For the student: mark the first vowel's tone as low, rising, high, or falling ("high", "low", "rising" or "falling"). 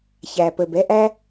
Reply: low